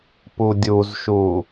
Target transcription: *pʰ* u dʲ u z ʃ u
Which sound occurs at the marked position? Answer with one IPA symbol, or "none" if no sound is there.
p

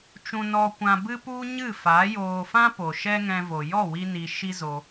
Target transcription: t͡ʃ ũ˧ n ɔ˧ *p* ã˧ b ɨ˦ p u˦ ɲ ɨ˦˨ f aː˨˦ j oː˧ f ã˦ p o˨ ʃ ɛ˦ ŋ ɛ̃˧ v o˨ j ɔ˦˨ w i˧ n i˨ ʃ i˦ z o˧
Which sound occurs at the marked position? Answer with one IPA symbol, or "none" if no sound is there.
kʷ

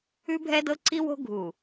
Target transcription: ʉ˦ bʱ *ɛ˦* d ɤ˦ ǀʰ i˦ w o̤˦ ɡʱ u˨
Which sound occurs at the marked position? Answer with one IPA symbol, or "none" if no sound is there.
ɛ˦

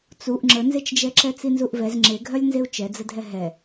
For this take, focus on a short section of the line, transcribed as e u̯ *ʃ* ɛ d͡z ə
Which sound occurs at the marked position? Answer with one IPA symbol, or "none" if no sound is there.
t͡ʃ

